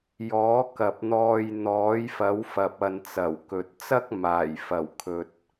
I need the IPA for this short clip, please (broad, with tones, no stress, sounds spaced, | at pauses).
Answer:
j ɔː˨˥ k ɐ˨ p̚ n̪ ɔː˧ j n̪ ɔː˨˥ j f ɐ˨˥ w f ɐ˨ p̚ ɐ˨ n t͡s ɐ˨˩ w k ɵ˨ t̚ t͡s ɐ˥ k̚ m aː˨˩ j f ɐ˨˩ w kʰ ɵ˨ t̚